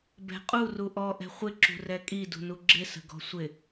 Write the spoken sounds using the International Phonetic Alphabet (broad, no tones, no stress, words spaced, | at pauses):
bɛ̤qʼu ruʔɔ ʔɛ̤χʷɪ ǁṳrɛkʼi dṳnuɡ͡ǁɪ sə̤ɡɔ̤sʷɪ